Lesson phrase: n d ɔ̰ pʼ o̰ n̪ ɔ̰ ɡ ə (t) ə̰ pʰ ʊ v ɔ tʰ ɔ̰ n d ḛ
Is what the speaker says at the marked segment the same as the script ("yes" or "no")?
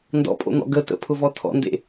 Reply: yes